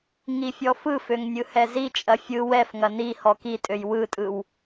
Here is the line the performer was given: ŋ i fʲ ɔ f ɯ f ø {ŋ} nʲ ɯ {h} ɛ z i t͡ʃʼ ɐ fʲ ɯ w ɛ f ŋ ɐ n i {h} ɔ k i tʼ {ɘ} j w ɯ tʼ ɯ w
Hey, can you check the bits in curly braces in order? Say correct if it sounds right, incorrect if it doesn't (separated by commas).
correct, correct, correct, incorrect